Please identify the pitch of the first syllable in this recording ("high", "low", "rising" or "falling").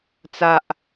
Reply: low